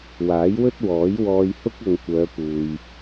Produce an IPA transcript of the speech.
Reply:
w aː˨˥ j w ɵ˥ t̚ w ɔː˨˥ j w ɔː˧ j h ʊ˥ k̚ ɐ˨ ŋ kʷ œː˨˧ p uː˨ j

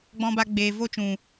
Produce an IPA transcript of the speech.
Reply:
ɡ͡b ɔ̃˦ b a˦ ɡ͡b eː˧ v o˦ t͡ʃ ũ˨

